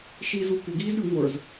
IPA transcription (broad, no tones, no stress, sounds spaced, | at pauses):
ʃ i z u kʷ ɪ ɡ iː z ɾʲ u ŋʷ ə˞ z